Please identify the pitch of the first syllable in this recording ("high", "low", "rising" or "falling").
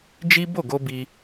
high